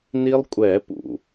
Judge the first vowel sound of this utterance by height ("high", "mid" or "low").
high